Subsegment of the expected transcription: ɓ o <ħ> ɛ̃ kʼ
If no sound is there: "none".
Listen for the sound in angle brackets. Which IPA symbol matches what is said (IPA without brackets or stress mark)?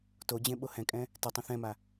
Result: h